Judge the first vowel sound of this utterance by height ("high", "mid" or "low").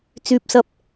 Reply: high